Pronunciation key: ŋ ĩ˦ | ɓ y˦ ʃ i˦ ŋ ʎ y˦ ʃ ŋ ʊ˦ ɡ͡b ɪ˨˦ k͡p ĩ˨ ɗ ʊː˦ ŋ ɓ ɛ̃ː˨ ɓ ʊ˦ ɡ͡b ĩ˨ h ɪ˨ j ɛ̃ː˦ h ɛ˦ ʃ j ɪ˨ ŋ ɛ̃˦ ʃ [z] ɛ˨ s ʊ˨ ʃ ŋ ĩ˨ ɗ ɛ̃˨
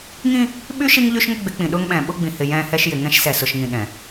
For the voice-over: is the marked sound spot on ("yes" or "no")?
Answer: no